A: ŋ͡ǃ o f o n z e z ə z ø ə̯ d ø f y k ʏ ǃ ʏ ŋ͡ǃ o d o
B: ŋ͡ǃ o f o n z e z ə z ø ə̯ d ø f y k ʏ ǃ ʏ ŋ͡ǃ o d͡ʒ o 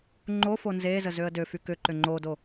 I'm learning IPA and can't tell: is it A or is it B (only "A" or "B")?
A